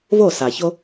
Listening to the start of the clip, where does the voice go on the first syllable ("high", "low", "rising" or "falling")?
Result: falling